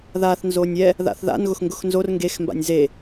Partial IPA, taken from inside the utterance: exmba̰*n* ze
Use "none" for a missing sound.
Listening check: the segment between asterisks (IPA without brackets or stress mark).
nʲ